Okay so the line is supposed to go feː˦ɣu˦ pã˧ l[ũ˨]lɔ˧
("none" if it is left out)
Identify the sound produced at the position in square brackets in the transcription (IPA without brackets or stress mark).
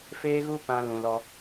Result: ũ˨